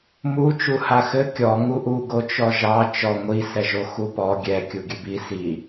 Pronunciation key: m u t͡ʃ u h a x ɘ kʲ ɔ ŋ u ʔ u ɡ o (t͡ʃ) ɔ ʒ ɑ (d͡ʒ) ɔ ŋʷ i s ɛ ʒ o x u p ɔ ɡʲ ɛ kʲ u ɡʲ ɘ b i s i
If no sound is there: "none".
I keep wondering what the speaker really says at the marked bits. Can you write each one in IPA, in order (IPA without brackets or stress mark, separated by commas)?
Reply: t͡ʃ, t͡ʃ